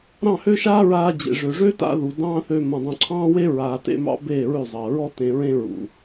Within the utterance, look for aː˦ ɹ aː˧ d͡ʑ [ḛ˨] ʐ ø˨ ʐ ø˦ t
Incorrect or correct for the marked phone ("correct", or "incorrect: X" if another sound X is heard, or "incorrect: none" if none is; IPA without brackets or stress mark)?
correct